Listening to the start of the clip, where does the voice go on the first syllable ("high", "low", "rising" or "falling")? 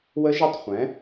rising